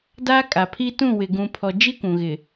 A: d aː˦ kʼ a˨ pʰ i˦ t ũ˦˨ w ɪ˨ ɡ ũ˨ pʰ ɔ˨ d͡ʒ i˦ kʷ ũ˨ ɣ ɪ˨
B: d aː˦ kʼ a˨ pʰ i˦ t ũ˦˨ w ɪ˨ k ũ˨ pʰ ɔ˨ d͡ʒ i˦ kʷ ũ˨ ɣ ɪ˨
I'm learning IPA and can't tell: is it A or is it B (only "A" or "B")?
A